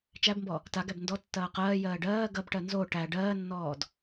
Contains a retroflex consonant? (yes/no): yes